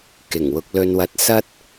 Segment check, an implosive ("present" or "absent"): absent